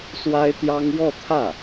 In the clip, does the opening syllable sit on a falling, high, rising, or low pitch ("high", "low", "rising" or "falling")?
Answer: high